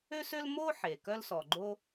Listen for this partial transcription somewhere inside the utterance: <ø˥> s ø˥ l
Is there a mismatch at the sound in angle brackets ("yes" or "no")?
no